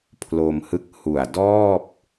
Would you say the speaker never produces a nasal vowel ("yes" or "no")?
yes